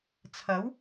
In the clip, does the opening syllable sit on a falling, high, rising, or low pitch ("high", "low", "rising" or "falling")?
rising